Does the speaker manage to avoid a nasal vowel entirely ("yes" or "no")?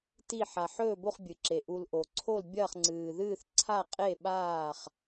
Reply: yes